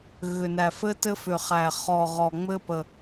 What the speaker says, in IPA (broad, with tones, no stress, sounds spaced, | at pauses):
ɣ ʏ˨˩ n æ˨˩ f ɘ˦ t ɘ˦ f ʏ˨˩ χ æ˨˩ χ ɔ˨˩ ʁ ɔ˨˩ ŋ͡m ɘ˦ p ə˨˩